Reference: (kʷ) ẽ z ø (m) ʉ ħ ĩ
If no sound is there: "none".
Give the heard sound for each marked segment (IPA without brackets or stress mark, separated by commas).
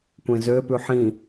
kʷ, p